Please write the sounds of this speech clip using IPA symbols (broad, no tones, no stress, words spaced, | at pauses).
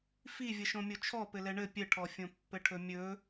fi vʲəʃõmʲot͡ʃʰɔ pɘlɛɳɘ pʲɘʈʰɔ fʲõpːɘʈʰɵmʲɵ